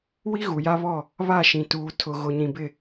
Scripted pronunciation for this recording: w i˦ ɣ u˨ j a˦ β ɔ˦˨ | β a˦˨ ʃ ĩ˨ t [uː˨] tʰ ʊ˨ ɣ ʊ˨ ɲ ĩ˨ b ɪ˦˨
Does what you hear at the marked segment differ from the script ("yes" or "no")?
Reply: no